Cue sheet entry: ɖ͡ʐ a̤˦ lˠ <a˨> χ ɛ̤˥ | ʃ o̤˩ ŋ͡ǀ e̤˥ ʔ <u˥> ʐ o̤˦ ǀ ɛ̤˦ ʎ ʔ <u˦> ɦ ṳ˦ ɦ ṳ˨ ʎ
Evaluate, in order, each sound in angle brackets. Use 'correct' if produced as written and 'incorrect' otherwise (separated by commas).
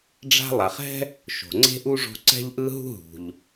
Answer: correct, correct, incorrect